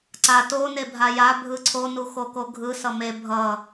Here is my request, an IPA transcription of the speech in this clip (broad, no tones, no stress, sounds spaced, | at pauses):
ǀ a t o n e bʱ a j a bʱ ɯ ǀʰ o n u x o k o ɡʱ ɯ s ʌ m e bʱ ʌ